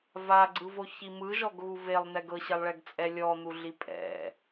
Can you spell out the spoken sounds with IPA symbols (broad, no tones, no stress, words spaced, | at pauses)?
vaɡ͡ǀɯvoçi mɯʒɔɡɣu velˠn̪ɛɡ ɤɕɛlˠɭɛɡt͡sʼɛ lʲɔn̪uɮi pʼɛ̰